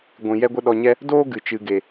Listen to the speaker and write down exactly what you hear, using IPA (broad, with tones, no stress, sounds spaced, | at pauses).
ɡʷ ĩ˨ j ɛ˦ ɡʷ ə˦ ɗ ɔ˧ ɲ ɛ˦ | d oː˦ ɡ ɨ˨ t͡ʃ ɨ˨ ɡ e˨